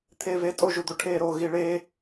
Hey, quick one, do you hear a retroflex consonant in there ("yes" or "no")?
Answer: yes